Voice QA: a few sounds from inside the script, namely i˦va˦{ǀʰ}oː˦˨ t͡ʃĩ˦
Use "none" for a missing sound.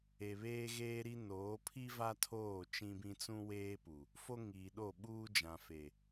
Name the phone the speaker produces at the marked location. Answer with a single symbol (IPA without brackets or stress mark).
tʰ